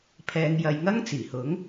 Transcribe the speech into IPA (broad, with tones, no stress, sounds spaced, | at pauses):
pʰ ɛː˨˧ ŋ j ɐ˨˧ j ŋ ɐ˥ ŋ t͡s iː˨˩ h ʊ˨˥ ŋ